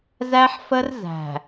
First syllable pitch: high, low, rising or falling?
high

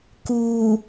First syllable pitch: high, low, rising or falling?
low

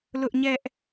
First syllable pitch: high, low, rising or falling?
high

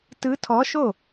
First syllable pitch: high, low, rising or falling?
rising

